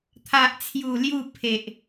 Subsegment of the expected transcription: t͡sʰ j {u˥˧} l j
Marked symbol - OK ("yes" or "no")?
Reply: no